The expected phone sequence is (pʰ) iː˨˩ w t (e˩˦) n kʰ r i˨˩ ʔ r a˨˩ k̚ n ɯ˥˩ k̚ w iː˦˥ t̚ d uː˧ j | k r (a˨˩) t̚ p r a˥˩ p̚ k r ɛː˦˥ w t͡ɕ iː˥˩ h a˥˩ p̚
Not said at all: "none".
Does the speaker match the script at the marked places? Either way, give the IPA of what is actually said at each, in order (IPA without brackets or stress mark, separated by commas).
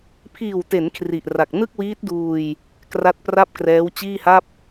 pʰ, e˩˦, a˦˥